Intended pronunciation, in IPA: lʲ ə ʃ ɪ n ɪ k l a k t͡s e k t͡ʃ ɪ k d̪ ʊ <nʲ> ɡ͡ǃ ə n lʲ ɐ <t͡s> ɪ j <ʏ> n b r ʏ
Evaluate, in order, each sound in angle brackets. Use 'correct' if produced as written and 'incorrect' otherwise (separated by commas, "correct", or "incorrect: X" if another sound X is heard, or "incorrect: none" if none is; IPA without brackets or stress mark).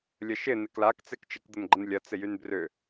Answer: incorrect: n, correct, incorrect: y